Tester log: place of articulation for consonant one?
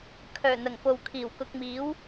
velar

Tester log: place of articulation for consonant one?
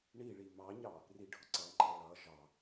retroflex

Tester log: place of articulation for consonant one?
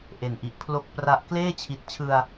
glottal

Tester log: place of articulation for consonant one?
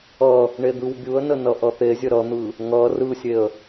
retroflex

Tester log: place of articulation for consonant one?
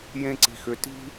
palatal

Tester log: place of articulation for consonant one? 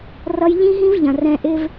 alveolar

